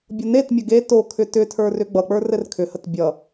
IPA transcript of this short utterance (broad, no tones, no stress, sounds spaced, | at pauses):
bʲ ʌ n e t mʲ ə ɡ e t o kʰ ʏ t ʏ tʰ ə˞ r ʏ ɡ͡b ʌ k͡p ə˞ r ɘ r kʰ ʏ h ə t bʲ ʌ